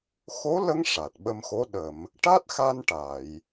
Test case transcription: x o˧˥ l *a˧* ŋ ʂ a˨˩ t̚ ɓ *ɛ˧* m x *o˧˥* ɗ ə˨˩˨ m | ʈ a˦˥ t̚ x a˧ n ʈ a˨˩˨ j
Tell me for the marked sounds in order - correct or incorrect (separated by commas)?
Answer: incorrect, incorrect, correct